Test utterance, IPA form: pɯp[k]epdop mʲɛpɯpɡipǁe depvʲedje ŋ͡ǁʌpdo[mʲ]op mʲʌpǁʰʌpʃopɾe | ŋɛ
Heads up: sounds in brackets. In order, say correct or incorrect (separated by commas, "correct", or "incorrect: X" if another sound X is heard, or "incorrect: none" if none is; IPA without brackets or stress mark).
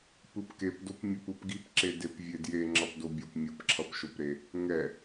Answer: correct, incorrect: bʲ